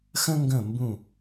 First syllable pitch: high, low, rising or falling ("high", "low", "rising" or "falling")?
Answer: high